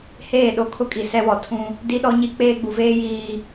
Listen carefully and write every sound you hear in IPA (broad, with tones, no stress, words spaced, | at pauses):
heː˦˨ɗo˦ kʰʊ˦kʼi˨ sɛ˦wɔ˨ tʰũ˦ | di˦ɗɔ˦ɲi˦ k͡peː˦ɡ͡bu˨veː˦jiː˨